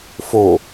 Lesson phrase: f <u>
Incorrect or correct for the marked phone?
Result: incorrect: o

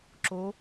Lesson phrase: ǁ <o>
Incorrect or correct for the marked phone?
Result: correct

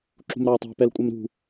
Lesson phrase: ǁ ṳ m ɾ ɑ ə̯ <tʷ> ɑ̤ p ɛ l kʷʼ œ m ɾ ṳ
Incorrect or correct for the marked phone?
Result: incorrect: tˤ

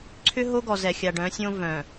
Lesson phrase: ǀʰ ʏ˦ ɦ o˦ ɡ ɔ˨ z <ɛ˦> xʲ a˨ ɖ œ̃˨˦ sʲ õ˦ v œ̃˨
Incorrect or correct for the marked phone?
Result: incorrect: ɛ˨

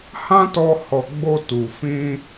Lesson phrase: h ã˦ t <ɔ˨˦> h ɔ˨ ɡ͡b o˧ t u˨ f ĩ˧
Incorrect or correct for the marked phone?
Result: incorrect: ɔ˧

